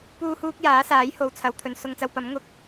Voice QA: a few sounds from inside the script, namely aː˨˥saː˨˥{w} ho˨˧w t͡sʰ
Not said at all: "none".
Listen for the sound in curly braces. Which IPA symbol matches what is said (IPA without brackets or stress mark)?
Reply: j